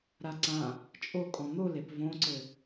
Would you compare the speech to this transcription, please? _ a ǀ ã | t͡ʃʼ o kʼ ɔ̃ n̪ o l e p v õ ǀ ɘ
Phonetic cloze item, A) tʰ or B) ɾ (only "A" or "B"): B